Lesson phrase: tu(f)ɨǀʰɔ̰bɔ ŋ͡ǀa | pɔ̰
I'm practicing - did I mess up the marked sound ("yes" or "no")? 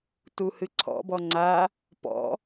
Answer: yes